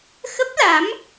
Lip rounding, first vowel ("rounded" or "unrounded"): unrounded